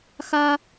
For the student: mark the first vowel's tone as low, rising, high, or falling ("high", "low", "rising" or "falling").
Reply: high